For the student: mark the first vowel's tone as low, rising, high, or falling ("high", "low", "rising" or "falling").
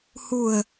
low